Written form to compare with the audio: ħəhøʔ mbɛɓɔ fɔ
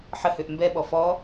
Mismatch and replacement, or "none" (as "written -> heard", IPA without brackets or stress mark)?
none